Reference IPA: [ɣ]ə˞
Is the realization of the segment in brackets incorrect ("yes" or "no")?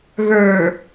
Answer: no